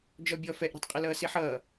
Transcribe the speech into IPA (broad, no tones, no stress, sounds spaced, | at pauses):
d͡ʒ ɔ bʲ ɔ f ɛ ʔ ɾ i̤ tˤ qʼ ɪ l ʌː s i ħ ʌː